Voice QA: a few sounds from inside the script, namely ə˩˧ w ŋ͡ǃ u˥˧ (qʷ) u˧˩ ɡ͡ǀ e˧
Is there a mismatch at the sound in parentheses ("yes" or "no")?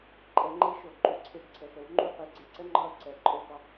yes